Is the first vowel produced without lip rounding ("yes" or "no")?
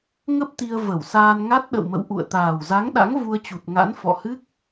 yes